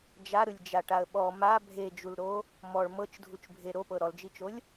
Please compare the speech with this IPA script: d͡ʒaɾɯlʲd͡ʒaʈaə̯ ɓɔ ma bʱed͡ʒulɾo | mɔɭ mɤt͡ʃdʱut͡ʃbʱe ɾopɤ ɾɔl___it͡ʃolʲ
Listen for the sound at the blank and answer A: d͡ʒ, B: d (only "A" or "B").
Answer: A